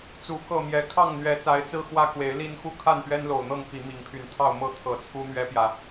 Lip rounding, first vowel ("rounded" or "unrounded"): rounded